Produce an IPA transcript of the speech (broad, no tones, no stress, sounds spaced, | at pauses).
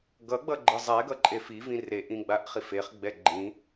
ɡ ʌ ɡ͡b ʌ ɡ͡ǃ ɯ zˤ ɛ ɡ ʌ ǃʼ e f i v ĩ r e ʔ ĩ ɡ͡b a ʔ χ i f e χ ɡ͡b ɛ ɡ͡ǃ ĩ